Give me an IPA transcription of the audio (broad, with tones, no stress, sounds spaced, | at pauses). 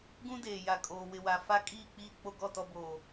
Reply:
ɡ ũ˦ d eː˨ j a˨ kʼ oː˨ w ɪ˨ w a˨ f a˦ kʼ iː˦˨ k͡p iː˦˨ k͡p o˦ ɡ ɔ˦˨ t ɔ˦ b oː˨